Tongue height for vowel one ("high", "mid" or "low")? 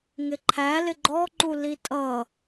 high